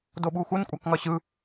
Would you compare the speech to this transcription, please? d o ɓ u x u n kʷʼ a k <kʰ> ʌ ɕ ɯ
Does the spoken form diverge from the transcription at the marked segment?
yes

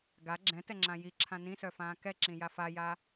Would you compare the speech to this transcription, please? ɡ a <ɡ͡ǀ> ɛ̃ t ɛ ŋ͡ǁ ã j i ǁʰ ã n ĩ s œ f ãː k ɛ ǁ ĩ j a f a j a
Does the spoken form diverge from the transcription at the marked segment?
yes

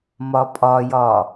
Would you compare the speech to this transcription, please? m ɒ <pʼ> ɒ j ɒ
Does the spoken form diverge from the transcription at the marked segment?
no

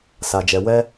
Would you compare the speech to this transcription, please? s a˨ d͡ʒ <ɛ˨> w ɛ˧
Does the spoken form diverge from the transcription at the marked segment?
no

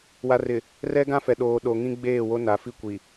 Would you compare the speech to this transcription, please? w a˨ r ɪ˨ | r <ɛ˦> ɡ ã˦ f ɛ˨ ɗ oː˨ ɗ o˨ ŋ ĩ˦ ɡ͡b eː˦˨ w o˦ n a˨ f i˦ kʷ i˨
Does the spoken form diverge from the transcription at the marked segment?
no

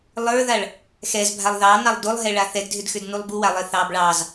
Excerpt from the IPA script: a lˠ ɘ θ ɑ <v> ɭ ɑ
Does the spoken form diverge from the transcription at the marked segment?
yes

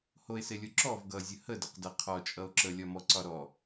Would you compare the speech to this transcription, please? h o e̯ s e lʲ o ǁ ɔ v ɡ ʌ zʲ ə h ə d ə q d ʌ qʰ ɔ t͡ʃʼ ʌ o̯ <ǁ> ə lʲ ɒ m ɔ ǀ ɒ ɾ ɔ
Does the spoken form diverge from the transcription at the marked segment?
no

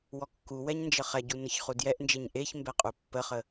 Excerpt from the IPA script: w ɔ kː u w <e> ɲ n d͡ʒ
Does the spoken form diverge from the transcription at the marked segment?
yes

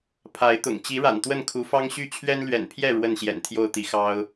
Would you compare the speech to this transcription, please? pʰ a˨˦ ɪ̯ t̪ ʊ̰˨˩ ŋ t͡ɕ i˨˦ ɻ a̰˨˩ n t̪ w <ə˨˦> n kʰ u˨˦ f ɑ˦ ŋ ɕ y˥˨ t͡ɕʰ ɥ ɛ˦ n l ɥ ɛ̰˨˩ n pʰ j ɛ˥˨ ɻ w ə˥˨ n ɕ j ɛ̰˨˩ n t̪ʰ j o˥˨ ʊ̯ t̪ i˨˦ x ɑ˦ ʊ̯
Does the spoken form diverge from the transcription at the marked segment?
yes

